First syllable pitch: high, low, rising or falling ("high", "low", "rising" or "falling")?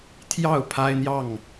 falling